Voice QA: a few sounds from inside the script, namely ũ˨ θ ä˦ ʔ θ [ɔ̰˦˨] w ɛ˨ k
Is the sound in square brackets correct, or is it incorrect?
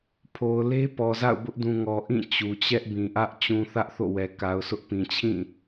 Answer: incorrect